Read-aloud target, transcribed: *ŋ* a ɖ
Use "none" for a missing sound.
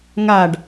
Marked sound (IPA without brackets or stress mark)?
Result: ŋ